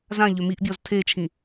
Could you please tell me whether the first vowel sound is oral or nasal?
nasal